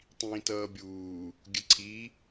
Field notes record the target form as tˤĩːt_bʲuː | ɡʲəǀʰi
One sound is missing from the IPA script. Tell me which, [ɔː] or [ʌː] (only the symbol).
ʌː